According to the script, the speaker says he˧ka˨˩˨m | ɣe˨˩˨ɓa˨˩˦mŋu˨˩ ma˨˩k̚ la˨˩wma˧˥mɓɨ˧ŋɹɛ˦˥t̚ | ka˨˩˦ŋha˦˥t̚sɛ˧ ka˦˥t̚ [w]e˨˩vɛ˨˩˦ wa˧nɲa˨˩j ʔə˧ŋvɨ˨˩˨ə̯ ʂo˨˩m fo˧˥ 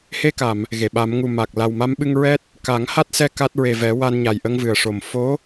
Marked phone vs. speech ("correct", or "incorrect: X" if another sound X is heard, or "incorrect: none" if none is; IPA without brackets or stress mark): incorrect: ɹ